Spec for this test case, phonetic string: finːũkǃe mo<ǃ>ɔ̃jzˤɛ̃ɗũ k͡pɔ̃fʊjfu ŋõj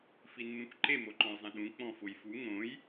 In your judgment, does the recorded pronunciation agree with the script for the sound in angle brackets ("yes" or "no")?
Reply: yes